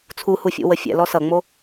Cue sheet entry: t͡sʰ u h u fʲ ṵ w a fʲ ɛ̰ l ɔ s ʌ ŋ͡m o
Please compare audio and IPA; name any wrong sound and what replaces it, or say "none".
a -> ə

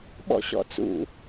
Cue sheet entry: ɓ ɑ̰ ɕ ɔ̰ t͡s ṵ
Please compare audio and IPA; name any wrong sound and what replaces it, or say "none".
ɑ̰ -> ɔ̰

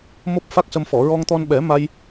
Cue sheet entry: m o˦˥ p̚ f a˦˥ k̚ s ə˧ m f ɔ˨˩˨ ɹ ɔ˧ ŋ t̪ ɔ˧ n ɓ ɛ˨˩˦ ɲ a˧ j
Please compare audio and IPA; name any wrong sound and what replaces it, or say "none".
ɲ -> m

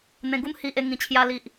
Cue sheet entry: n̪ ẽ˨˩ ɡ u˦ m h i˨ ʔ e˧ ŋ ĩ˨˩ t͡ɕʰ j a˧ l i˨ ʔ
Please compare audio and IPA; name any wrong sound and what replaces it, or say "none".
none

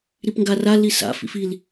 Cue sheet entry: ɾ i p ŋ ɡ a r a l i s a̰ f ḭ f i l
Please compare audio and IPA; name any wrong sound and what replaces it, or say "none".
none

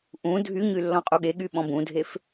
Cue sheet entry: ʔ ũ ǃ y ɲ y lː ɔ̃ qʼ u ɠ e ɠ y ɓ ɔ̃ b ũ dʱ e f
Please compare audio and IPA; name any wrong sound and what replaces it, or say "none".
ǃ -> dʱ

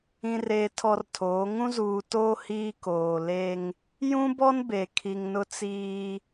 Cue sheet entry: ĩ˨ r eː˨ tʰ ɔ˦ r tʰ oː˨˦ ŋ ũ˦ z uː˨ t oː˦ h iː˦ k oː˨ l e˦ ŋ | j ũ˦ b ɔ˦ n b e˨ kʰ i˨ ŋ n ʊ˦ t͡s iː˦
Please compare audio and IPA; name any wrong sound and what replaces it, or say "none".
none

